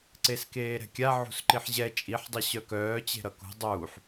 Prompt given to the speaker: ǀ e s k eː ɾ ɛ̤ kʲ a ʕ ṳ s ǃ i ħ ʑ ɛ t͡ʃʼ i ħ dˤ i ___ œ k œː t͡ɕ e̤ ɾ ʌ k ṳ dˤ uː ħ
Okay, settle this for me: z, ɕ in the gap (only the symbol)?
ɕ